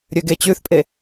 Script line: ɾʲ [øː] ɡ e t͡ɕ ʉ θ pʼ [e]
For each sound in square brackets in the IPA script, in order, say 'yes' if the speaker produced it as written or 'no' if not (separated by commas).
no, yes